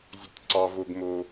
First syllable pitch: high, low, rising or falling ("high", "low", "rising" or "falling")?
low